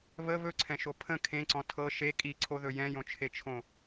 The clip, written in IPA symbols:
β ə β ɵ ǀʰ ɛ̃ ʃ o pʰ ə̃ kʰ ẽ ǀ ɔ̃ tʰ ɤ ʃ e kʼ i ǀʰ o ð ɵ j ɛ̃ j õ t͡ʃʰ e t͡ʃʰ õ

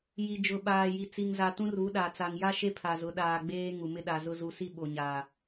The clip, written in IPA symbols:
j i˨ d͡ʒ ʊ˨ ɓ aː˨ j i˨ t͡s i˨ ŋ z a˨ t ũ˦ r u˨˦ ɗ a˨ t͡s a˨ ŋ j a˦ ʃ e˦ pʰ a˨ z ʊ˨˦ ɗ aː˨ ɡ͡b eː˦ ŋ u˨ m ɪ˦ ɗ a˨ z ʊ˦ z u˨ s i˦ ɓ o˨ ɲ aː˨

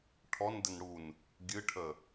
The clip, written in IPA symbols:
ʈʰ ɔ n d ə n ɽ u n | ɡʲ ɨ ʈʰ ə

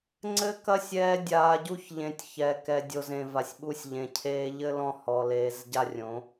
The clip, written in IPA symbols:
ŋ͡ǀ ɘ˦ k ɐ˦ sʲ ɛː˦ dʲ aː˨ ɟ u˦˨ ç ʎ ẽ˨ tʲ ç ɛ˨ k ɛ˨ dʲ o˨ z ẽ˨ v a˨ sʲ ɓ u˦ sʲ ʎ ẽ˨ cʰ eː˦ ʎ ɘ˦ l ɔ̃˦˨ h ɔ˨ l eː˨˦ z ɟ a˦ rʲ õ˨˦

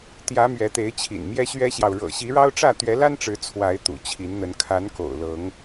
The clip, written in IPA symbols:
t̪ j ä˨˦ m ɥ ɛ˨˦ t̪ e˨˦ ɪ̯ t͡ɕʰ ḭ˨˩ n m j ɛ˦ ɕ ɥ ɛ˦ ɕ j ɑ˨ ʊ̯ ɻ ɤ̰˨˩ ɕ i˨˦ ɻ ɑ˦ ʊ̯ ʈ͡ʂ ä˥˨ t̪ ɥ ɛ˨˦ l a˦ n ʈ͡ʂ ɻ̩˨˦ t͡sʰ w a˨˦ ɪ̯ t̪ ṵ˨˩ t͡ɕʰ i˨˦ n n̪ ə˨˦ n kʰ a˨˦ n k o̰˨˩ ʊ̯ l ɤ˨˦ ŋ

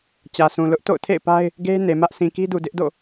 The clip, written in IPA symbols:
t͡ɕ ä˨ s ũ˨ l ʊ˦ ʔ t o̰˦˨ ʊ̯ tʰ ḛ˦˨ ɪ̯ p a˦ ɪ̯ | ɡ e˦ n e˨ m ä˦ ʔ sʰ ĩ˨ k i˦ d u˨ d ɪ˦ ʔ d o̰˦˨

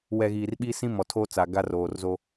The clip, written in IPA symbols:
w ɛ˨ ɣ iː˨ r ɓ i˦ s ĩ˦ m ɔ˨ tʰ oː˦ t͡s a˨ ɡ a˦ r oː˨ r z o˦

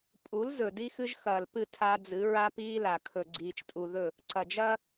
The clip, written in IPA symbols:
pʼ u˨˦ l z ɵ˨ d i˦ x ɨ˦ ʒ x ɐː˨ l p ɨ˦˨ tʰ a˦ d͡z ɨ˨˦ ɹ a˦ p iː˦ l a˨ kʰ ɵ˨ ɡ͡ǀ iː˨ t͡ʃ tʼ u˨ ð ɵ˦˨ | ǀ ɐ˨ d͡ʒ ɐː˦

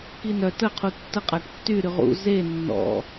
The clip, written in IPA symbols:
k i n œ t ə qʰ u tː ə qʼ a ʈ tː y ɾ y ʁ ṵ z e nː ɔ̰

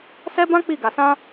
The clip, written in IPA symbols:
s ɛ˦ b ã˦ k͡p i˦˨ ɡ a˨ s ã˧

